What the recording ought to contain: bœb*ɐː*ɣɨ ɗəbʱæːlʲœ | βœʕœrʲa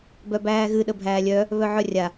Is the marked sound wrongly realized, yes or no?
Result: yes